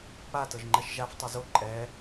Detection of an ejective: present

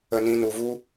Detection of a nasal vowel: present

